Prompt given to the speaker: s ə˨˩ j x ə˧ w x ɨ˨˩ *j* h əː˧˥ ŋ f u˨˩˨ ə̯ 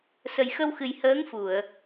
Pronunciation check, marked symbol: correct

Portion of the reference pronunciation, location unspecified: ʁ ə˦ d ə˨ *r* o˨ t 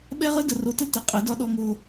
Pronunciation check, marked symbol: correct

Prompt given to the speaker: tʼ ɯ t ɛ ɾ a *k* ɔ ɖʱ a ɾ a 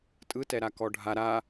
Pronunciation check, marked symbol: correct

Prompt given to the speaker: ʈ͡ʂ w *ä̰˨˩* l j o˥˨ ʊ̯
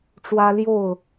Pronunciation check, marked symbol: incorrect: ä˦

